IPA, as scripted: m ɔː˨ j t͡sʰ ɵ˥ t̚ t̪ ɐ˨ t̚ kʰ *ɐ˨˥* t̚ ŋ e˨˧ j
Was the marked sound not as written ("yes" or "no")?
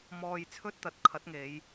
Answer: no